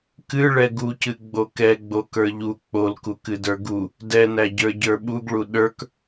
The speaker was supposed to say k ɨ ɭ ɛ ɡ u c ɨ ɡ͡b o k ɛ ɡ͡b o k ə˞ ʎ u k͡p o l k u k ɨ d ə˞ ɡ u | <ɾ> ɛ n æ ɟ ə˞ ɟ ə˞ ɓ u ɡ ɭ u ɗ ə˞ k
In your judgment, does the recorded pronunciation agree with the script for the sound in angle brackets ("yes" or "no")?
no